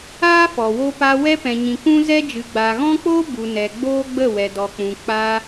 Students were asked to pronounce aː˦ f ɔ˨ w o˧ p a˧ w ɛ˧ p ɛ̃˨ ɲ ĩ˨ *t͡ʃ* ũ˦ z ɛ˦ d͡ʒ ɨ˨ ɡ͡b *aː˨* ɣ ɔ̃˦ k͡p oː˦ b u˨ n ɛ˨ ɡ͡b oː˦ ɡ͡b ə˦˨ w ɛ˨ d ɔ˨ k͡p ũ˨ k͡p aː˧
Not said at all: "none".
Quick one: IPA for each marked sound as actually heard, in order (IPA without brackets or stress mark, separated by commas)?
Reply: k, aː˨